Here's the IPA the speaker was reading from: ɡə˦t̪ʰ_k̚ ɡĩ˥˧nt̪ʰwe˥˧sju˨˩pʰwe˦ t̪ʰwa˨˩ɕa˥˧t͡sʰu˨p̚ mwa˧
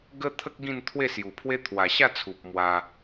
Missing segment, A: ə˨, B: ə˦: B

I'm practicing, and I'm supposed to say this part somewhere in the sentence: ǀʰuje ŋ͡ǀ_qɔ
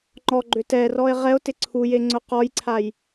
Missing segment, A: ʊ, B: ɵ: A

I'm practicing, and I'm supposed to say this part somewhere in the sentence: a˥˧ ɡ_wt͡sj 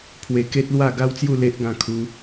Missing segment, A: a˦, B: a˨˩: A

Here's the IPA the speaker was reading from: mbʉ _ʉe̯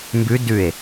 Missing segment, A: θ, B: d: B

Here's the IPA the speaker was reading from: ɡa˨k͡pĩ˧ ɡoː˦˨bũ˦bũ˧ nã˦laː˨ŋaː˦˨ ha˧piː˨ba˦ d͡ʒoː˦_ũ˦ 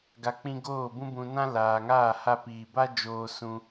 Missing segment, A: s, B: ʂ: A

